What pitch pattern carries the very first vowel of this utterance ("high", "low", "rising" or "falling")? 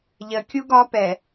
low